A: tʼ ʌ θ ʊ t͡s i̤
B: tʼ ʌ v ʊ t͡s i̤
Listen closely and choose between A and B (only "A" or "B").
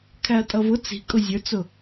B